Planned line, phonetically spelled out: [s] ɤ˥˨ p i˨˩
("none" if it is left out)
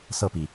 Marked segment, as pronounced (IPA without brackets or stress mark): s